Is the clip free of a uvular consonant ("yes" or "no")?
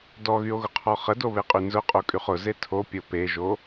no